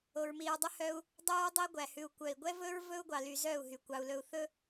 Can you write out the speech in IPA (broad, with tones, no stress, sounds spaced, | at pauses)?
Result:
o˨ ɹ m i˨ ɹ dˤ ʉ˦ h œ˦ u̯ | dˤ ʉ˦ ɹ dˤ i˦ ɡʷ æ˨ h ʉ˨ u̯ kʷ œ˨ i̯ ɡʷ ɛ˦ v ɵ˦ ɹ v ɵ˦ u̯ ɡʷ ɑ˨ l y˨ z œ˦˨ u̯ ɦ y˨ kʷ ɑ˨ u̯ l ɵ˨ u̯ θ ɵ˦